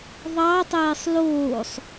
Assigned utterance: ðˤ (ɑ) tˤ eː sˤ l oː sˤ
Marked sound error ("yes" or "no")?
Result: no